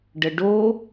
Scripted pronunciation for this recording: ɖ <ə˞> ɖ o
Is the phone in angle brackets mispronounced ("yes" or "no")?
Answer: yes